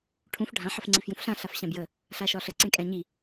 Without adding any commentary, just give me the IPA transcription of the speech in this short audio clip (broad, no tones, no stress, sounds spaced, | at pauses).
ʈʰ ũ f ɖʱ ã ħ ə f ŋ͡ǀ i f j ũ f ɬ ã ɬ a f ɕ ã b j ə | ɬ a ʃ ɒ ɬ ə ǀ ẽ kʼ ɛ̃ ɲ i